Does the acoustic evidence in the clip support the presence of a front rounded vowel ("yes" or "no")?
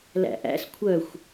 yes